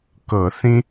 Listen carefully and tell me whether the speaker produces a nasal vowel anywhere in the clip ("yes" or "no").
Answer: yes